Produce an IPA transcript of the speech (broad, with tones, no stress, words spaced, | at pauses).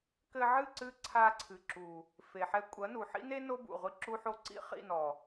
kɘ˧ʕɨ˦˨ǀɨ˧ ǀʰa˧ǀʰɨ˨ǁu˨ | fe˨ħɛ˧ kʷʼɐ˨˦nu˨ ħḭ˦ne˦ no˦bṵ˨ ʁʷi˧ ǁu˦ħo˦ ǀḭ˦χḭ˦˨nɔ˨